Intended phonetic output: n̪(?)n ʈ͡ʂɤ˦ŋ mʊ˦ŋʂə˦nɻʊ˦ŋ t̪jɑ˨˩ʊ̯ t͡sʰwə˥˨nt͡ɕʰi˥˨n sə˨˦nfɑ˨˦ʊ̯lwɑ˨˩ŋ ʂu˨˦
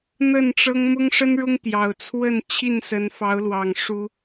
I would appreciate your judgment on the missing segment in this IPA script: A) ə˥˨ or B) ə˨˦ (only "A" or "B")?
A